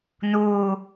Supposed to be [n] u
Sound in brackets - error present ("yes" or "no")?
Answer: no